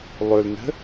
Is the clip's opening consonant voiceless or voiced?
voiced